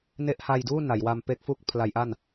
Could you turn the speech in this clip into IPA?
n e˦˥ ʔ h a˧ j d uː˥˩ n a˩˦ j w a˧ m p e˦˥ k̚ f u˥˩ k̚ pʰ l a˦˥ j ʔ a˥˩ n

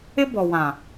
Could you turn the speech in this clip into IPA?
ɪ˦ b ɔ˨ w ã˨

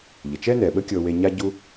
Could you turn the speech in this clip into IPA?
ʎ ə˨ t͡ʃ ɛ˦ n ɛ˨ ɓ ə˦ kʲ ɤ˧ w e˧ ɲ a˦ ɟ u˦

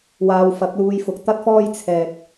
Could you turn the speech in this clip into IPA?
w aː˨ w f ɐ˨˥ k̚ l uː˧ j f ʊ˨ k̚ t̪ ɐ˥ t̚ f ɔː˥ j t͡sʰ ɛː˨ k̚

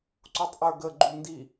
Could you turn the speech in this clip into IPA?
ǀ u tˤ ʔ ə˞ ɡ ə ɡ͡ǃ u n d i

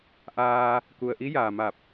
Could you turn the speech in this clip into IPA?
ʔ aː˧ | k u˩ ə̯ ʔ i˧˥ j aː˩ m a˧˩ p̚

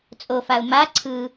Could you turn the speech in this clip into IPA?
t͡sʼ o f a ʊ̯ m a ǀʰ ɯ

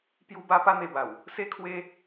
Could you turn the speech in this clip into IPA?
p j u˦ b a˦ p a˦ n̪ e˧ b a˨˩ w | s e˦ kʰ w e˦

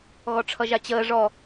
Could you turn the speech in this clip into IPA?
ɣ ɔ ʈ͡ʂʰ ʌ ʒ a t͡ɕ əː ʐ ɔ

